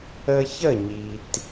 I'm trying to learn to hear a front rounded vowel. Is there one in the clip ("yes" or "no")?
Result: no